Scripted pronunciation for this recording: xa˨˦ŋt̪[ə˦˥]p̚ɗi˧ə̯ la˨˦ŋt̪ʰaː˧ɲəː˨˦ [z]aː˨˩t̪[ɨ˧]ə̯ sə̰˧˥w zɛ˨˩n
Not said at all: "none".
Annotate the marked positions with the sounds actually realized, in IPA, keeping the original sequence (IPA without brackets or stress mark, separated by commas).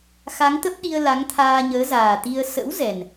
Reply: ə˦˥, z, i˧